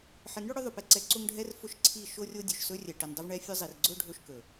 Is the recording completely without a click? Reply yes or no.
no